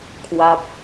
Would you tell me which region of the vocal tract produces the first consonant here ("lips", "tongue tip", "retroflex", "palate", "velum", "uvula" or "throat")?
velum